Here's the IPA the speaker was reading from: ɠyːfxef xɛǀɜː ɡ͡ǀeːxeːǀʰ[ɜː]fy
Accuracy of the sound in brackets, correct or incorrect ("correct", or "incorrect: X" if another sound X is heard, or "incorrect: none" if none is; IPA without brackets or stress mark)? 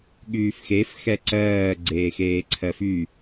incorrect: ɜ